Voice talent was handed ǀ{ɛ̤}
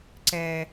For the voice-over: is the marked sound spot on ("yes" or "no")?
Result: no